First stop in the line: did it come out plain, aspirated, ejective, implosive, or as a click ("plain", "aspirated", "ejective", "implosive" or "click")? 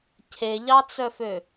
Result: aspirated